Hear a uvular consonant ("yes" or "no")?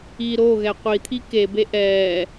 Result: yes